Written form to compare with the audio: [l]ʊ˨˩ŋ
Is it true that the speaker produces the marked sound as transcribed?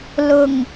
yes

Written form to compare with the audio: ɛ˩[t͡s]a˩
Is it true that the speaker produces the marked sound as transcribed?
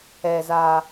no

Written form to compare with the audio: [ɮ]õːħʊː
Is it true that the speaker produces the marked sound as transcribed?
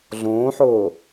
yes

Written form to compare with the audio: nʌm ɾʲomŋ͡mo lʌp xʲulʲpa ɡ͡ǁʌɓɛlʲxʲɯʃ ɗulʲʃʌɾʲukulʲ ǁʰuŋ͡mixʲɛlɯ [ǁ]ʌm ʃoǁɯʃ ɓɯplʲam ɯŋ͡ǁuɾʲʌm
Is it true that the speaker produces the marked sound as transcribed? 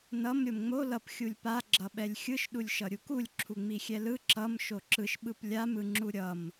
yes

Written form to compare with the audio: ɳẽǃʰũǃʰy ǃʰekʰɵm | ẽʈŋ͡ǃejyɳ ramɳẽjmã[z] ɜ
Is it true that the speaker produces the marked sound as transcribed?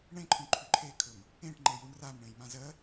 yes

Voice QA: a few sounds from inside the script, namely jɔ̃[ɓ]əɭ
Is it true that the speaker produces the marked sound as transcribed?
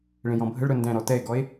no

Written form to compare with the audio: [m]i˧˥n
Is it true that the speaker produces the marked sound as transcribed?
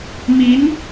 yes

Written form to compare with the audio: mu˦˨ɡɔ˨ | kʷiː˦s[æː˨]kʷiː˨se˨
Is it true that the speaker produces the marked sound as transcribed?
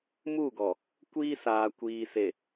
no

